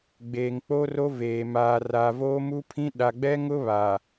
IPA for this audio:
ɡ͡beː˨ŋk͡po˦ro˦ veː˨ maː˨ ra˨voː˦mu˦pʰĩ˦ ɗa˨ɡ͡bɛ˦ŋʊ˦ βa˨

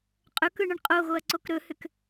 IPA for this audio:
qʼɵkɯɳəɳ qʼoɣoɐ̯ǀok ɾɵhʏk

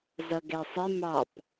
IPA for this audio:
zʌɡɛsˤɪ mɑp

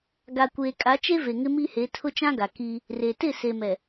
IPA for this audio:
ɡa˨kʷeː˨ kʼa˨˦t͡ʃe˦ve˨ ŋɪ˦mi˦he˨˦ tʰʊ˦t͡ʃã˦ɡa˨ kiː˦ | re˨ tɪ˦˨se˨mɛ˨

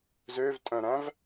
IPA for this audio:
zøvtʼœ̃ɾæ̃v

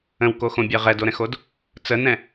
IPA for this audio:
ə̃wkoxõbʲɜ ʁɛdoɾɛ̃xod | t͡sənɛ̃

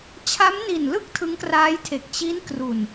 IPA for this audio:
t͡ɕʰa˦˥mni˨˩nlɯ˥˩k̚ tʰɯ˦˥ŋkraː˦˥jtʰe˨˩k̚ t͡ɕi˦˥nkru˨˩n

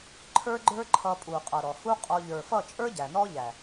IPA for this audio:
ǃʰə˞˦ɡ͡ǃə˞˦ǃʰʌ˧ pʼu˨qʼʌ˨ ɾɔ˨hu˦qʼɔ˧ ʎə˞˨fʌ˦˨t͡ʃʼə˞˦ ɟæ˨nɔ˦ʎæ˨

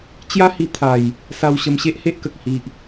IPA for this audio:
t͡ɕja˦hi˧ t̪ʰa˨˩j | sa˧w ɕə˧mɕe˦ʔhe˦ʔkə˨k̚ hi˨ʔ

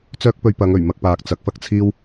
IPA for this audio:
t͡sœː˥k̚pɵ˧ɥpɐ˨˧ŋ ɵ˨˩ɥmɐ˧k̚paː˨k̚ t͡sɐ˨˥k̚fɐ˧k̚t͡sʰiː˥w

